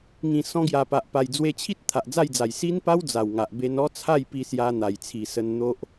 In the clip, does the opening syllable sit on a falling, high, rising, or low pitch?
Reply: low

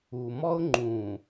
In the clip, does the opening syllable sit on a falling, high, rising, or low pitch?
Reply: low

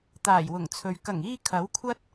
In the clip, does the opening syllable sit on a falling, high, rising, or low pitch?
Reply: low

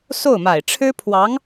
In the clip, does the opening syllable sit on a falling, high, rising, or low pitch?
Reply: falling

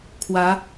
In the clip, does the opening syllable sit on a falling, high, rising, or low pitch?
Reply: rising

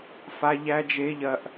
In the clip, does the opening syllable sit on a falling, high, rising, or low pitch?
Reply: high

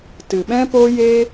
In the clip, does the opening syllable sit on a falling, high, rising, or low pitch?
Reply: low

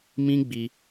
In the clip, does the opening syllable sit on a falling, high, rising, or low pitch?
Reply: high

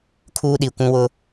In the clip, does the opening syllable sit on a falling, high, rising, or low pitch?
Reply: high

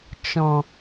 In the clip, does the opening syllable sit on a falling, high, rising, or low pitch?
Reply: low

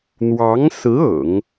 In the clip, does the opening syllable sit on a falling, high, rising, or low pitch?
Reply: rising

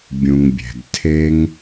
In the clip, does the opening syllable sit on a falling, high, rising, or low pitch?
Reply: low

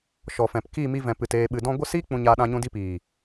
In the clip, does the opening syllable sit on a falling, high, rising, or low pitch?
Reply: low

